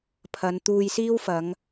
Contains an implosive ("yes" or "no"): no